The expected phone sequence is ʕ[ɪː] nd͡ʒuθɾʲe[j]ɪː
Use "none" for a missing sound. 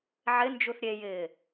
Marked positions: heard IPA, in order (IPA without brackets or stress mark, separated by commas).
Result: ɪ, j